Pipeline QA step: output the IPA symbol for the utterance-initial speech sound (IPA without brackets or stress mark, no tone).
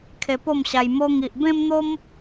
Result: kʰ